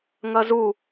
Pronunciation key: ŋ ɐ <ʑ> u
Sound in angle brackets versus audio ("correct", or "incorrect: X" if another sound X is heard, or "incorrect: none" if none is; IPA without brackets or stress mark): incorrect: z